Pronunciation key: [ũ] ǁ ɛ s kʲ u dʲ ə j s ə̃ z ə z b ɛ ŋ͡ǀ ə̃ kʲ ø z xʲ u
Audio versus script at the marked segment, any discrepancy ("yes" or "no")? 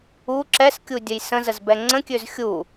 yes